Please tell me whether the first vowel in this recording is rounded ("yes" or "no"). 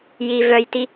no